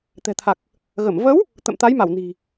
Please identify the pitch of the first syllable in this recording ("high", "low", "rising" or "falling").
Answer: low